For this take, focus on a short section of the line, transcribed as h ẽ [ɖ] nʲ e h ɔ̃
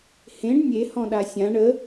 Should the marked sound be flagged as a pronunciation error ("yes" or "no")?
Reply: no